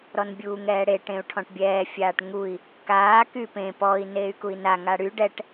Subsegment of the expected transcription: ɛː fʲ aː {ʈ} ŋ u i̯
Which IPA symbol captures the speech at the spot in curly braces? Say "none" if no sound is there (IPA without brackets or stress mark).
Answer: ʈ